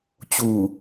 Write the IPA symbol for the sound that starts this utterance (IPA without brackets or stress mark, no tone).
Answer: t͡ɕ